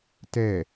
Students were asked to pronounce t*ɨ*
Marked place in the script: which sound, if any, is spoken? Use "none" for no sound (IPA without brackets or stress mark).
ɛ